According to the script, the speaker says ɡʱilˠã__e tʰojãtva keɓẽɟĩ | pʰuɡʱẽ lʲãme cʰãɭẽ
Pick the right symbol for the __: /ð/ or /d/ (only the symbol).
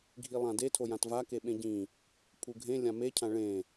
d